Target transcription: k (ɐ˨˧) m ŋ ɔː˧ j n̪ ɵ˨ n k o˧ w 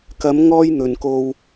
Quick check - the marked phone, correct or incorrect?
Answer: correct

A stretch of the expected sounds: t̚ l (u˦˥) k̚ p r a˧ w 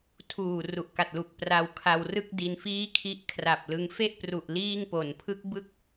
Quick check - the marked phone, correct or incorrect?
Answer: incorrect: u˨˩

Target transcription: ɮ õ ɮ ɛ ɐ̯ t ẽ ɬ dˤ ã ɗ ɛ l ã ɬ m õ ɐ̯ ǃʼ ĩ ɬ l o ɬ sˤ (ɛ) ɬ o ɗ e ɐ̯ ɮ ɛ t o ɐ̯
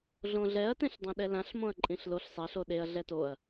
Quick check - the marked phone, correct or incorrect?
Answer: correct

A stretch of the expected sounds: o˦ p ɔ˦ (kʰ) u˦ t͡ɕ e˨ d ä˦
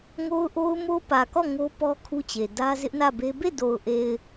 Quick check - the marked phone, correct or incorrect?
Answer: correct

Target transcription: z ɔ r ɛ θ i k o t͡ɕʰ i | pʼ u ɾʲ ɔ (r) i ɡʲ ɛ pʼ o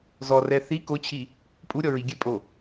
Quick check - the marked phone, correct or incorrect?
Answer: incorrect: ɹ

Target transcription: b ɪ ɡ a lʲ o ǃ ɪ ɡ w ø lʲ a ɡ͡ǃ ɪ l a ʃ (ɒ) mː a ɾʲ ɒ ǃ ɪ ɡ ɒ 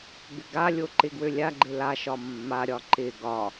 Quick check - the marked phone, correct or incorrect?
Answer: correct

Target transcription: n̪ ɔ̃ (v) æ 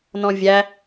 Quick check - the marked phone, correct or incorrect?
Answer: incorrect: vʲ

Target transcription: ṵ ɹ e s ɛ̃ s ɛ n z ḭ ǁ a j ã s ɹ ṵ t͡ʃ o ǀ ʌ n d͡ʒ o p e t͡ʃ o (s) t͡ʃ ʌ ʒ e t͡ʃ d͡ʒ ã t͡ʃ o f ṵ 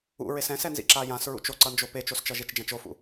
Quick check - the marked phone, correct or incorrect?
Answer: correct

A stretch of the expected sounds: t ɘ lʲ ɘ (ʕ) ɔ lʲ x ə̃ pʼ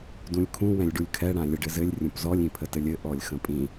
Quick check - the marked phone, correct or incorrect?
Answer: incorrect: ʔ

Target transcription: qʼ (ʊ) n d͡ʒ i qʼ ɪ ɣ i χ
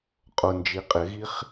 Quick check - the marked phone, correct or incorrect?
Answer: correct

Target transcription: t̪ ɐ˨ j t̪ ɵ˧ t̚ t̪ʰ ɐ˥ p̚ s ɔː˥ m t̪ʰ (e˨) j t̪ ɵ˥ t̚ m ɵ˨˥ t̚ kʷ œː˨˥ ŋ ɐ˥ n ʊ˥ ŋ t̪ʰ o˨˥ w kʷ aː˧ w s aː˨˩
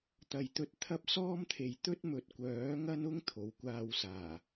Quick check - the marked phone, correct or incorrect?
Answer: correct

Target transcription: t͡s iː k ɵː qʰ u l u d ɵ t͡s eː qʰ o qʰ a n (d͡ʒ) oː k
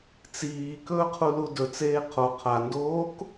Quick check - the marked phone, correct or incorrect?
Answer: incorrect: d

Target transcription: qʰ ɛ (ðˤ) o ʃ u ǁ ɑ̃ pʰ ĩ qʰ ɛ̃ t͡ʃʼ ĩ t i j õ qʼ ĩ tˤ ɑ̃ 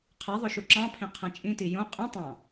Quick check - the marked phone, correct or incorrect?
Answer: correct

